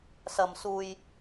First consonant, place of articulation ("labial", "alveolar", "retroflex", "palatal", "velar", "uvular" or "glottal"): alveolar